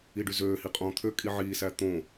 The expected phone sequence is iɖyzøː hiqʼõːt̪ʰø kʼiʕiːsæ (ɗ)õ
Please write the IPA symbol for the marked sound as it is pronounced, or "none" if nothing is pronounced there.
t̪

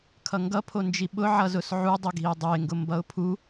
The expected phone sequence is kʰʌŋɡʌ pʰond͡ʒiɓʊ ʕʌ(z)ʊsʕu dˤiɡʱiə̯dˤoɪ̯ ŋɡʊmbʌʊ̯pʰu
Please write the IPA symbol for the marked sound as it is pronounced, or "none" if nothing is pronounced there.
z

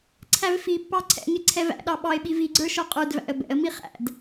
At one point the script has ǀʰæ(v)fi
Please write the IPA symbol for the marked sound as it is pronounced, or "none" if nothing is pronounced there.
v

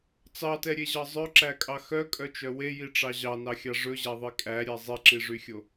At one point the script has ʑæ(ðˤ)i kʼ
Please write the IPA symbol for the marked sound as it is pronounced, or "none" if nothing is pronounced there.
ðˤ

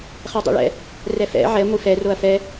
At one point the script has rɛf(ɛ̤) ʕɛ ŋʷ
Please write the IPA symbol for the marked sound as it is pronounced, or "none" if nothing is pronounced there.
ɛ̰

